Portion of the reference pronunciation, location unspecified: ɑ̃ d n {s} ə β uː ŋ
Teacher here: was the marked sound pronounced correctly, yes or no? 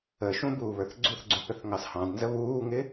no